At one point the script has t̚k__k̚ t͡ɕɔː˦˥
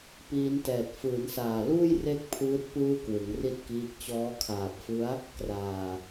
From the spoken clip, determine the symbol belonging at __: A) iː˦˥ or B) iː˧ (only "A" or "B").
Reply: A